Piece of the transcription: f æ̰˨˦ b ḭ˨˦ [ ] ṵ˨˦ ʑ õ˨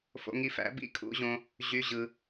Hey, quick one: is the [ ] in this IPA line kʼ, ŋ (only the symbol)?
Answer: kʼ